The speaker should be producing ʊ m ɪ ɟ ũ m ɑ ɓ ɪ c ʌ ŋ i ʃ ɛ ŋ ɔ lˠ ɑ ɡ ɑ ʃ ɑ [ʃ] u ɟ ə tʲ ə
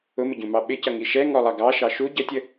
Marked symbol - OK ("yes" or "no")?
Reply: yes